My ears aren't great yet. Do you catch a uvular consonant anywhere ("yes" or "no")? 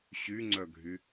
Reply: no